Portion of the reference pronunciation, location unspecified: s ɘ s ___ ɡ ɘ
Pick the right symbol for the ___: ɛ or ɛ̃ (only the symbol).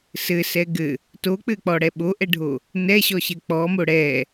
ɛ